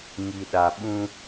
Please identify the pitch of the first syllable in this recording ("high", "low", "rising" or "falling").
low